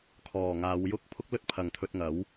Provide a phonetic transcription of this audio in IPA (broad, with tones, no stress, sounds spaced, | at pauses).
kʰ ɔː˨˩ ŋ aː˨˧ w j ʊ˥ k̚ pʰ ʊ˥ k̚ l ɵ˥ t̚ pʰ ɐ˨ ŋ t̪ʰ ɵ˧ t̚ ŋ ɐ˨˥ w